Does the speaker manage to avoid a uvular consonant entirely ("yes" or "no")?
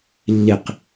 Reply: no